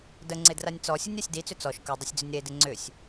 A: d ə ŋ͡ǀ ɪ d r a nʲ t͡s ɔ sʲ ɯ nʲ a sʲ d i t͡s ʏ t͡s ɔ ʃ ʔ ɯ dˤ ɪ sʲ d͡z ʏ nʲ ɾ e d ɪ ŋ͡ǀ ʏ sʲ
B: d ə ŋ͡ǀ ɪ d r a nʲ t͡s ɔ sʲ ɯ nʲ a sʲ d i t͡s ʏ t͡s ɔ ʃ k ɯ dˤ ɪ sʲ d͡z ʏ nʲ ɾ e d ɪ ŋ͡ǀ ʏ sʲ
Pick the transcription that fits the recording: B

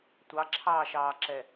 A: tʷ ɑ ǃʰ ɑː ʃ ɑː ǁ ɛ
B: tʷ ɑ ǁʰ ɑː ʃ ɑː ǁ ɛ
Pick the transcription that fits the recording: B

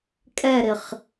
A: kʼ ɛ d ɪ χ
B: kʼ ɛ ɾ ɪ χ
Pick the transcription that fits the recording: B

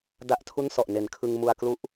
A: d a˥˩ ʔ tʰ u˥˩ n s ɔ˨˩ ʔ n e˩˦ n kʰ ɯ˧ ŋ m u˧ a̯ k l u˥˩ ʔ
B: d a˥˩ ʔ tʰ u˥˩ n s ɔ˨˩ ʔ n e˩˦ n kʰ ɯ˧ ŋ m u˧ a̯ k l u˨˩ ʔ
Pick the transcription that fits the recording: A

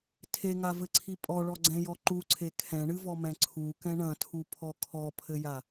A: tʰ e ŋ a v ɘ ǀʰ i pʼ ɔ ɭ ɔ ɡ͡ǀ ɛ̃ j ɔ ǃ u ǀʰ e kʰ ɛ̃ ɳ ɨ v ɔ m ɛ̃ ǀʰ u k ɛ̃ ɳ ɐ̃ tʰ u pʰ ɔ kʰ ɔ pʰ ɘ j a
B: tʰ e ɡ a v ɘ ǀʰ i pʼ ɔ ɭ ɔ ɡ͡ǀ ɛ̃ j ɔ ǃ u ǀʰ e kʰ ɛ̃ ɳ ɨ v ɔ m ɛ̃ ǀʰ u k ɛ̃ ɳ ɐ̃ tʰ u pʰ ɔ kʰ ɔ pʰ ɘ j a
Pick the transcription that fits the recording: A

